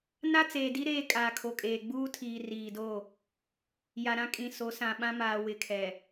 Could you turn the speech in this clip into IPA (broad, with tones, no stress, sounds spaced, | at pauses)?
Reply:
n a˦ t͡s eː˨ d i˦ ɾ eː˦ kʼ aː˨ kʰ o˨ kʼ eː˨ ɡ͡b uː˦ tʰ iː˨ r iː˨ d o˦˨ | j a˨ ɾ ã˦ kʼ ĩ˨ s o˨˦ s ã˨ ɓ ã˦ m aː˨ w ɪ˨ kʰ ɛ˨